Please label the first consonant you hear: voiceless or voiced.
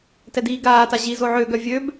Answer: voiceless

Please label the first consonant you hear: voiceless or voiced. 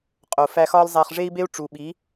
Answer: voiceless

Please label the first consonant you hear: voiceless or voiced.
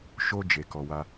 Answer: voiceless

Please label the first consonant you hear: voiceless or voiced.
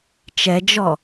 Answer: voiceless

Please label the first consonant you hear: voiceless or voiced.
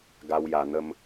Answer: voiced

